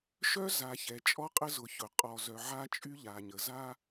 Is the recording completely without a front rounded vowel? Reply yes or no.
no